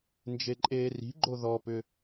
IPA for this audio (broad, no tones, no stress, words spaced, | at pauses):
nd͡ʒeǃʼeːri̤ɡ͡ǃo ðɔpʏ